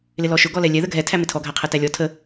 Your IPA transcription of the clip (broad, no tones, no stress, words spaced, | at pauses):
lɪlɔʃʊ ɡɔlɛlʲɛ ðəɡʱɛ tʰæmɪtʰɔ ɡʱæqʰɛtælʲɔ tʰə